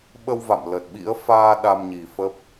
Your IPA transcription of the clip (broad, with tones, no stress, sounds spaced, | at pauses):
ɓ ə˧ w v a̰˧˨ m l ə˨˩ t̚ ɓ ḭ˧˥ ə̯ f aː˧ ɗ a˧ m ɲ i˨˩ f əː˦˥ p̚